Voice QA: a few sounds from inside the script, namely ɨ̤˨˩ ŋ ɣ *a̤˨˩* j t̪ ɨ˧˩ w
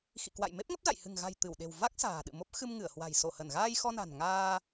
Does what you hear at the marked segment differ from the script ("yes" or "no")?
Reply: no